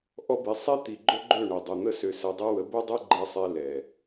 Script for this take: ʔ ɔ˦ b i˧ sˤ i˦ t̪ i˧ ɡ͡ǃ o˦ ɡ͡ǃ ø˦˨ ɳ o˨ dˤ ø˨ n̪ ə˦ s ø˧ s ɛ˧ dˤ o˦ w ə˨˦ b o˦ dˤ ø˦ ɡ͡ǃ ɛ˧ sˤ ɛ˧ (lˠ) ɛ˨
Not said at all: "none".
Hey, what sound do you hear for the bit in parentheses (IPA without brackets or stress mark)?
l